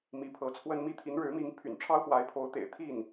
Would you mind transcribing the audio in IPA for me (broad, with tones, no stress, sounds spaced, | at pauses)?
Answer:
m i˧˥ pʰ ɤ˧˥ t͡sʰ w ə˥ n m i˥ t̪ʰ i˧˥ n ɻ ɻ̩˧˥ m i˧˥ ŋ pʰ y̰˨˩ n ʈ͡ʂʰ ɑ˥ ʊ̯ x w a˧˥ ɪ̯ pʰ o˧˥ ʊ̯ t̪ ḛ˨˩ ɪ̯ t̪ʰ i˥˩ n